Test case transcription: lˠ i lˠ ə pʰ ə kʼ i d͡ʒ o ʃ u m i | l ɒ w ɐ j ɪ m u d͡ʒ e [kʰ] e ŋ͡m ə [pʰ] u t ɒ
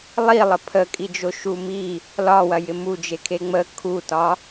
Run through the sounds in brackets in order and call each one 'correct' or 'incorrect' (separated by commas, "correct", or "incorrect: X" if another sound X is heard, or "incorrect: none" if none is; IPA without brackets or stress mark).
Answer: correct, incorrect: kʰ